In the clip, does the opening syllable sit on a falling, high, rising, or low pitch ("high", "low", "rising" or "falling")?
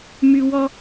high